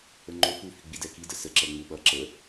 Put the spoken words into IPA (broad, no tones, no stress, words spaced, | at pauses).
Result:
əŋ͡ǃo fu fiɡ͡bidɛki dəsə ǁɛŋ͡muɓʌ ǁə